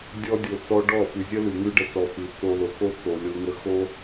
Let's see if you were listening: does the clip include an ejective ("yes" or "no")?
no